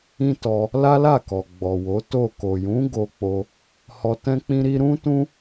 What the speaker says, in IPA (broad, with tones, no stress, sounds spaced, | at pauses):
ĩ˦ t ɔ˧ | l a˦ l a˦˨ k ɔ˨ ɡ͡b ɔ˨ w o˨˦ t o˦˨ k o˨ j ũ˨˦ ɡ o˧ k͡p o˧ | h ɔ˧ t ɛ̃˦ k͡p ĩ˦ ɾ i˧ ɾ ũ˦ t ũ˦